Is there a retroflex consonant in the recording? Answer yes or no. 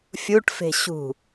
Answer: yes